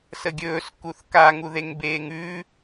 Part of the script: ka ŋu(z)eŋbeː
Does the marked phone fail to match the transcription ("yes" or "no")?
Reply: yes